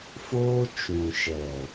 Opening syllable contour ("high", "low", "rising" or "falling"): high